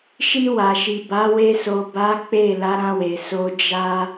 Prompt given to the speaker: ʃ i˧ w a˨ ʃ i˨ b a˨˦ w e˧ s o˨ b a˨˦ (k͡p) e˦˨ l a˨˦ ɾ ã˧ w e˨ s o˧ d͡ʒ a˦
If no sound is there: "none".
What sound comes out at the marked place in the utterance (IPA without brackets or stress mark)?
k͡p